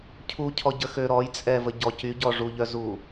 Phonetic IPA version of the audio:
cʰ u cʰ ɔ ɟ ə x ø ɾ ɔ j t͡sʼ ɛ v ə ɟ ɔ c y ɟ ɔ ʐ u ʎ œ z u

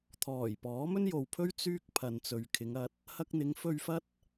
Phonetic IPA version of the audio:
t̪ʰ ɔː˨˩ j p ɔː˨˥ m ɵ˥ n j o˨ w pʰ ɵ˥ ɥ t͡s yː˥ k̚ pʰ ɐ˨ n t͡s ɵ˨ ɥ kʰ ɪ˨˧ ŋ ɐ˧ t̚ | h ɐ˧ k̚ n̪ ɪ˨˧ ŋ f ɵ˧ ɥ f ɐ˥ t̚

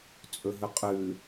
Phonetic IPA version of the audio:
t͡sʼ ɵ ɦ ɵ qʼ ʉ

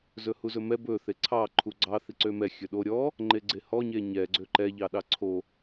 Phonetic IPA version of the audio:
z ɵ h u z ɵ m ɛ b ɵ θ e ǀʰ ɑ ǃʰ u ɡ͡ǀ ɑ θ i ǀ ø m ɛ xʲ ɵ ɗ o ɾʲ ɔ | ŋ͡ǃ e ɡ͡ǀ e h ɔ ɲ e ɲ ɛ ɡ͡ǀ ø ǃ ɛ ʎ ɑ ɗ ɑ ǀʰ o

